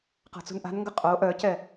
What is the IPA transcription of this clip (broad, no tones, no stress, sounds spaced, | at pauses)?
q a̤ t͡s ṳ n ʔ a̤ n ŋ ɡ ə qʼ o ʔ œ c ɛ